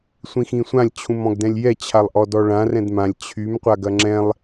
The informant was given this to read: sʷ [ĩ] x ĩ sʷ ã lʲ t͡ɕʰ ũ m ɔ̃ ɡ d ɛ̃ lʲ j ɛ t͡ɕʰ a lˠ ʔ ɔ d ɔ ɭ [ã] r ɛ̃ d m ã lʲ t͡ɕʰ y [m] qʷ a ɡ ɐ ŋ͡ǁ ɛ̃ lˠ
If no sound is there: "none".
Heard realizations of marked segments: ĩ, ã, m

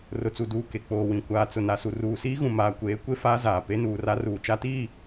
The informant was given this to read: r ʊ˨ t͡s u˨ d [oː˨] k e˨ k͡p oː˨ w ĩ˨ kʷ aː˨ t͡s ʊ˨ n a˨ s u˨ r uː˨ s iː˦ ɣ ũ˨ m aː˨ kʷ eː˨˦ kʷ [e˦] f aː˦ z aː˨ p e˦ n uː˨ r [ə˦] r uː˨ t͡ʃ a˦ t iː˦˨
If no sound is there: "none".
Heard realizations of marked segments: uː˨, e˦, a˦

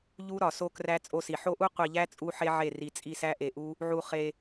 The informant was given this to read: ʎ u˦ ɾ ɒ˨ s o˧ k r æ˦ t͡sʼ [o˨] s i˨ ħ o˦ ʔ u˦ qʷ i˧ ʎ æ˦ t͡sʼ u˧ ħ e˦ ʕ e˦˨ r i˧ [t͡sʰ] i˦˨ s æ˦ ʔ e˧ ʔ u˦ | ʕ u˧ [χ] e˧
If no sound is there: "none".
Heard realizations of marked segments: o˧, t͡sʼ, χ

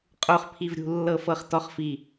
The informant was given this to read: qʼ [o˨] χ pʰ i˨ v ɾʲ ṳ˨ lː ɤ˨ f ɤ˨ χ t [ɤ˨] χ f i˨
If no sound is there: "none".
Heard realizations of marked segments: o˨, ɔ˨

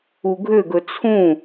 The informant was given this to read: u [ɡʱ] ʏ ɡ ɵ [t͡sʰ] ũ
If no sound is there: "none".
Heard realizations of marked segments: ɡʱ, t͡sʰ

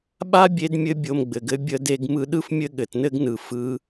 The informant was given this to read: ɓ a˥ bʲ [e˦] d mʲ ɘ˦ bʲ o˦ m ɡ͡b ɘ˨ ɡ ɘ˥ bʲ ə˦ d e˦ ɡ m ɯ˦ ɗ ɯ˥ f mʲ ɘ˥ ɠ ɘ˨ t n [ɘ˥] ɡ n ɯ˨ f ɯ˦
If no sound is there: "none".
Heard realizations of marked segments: e˦, ɘ˥

